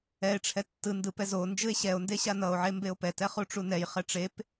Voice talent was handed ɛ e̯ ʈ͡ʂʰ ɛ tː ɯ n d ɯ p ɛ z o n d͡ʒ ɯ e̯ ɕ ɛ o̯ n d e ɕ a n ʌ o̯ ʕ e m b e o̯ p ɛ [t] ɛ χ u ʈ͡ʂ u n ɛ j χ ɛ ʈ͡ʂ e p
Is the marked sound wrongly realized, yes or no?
no